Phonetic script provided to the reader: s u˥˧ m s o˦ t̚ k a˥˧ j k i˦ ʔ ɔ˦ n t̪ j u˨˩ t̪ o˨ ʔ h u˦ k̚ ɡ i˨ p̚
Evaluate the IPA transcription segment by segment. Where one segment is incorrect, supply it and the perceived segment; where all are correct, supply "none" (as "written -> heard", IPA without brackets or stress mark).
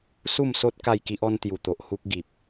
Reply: none